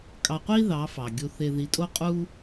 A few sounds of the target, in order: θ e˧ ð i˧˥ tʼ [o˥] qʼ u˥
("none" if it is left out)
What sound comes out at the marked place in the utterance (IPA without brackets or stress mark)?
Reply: o˥